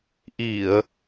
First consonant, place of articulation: glottal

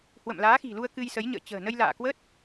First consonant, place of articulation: glottal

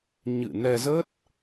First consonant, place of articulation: palatal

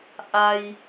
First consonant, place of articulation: glottal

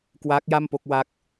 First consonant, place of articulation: velar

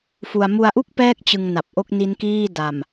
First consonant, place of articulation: labial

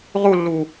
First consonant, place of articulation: uvular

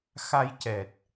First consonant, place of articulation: velar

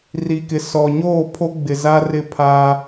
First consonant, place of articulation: alveolar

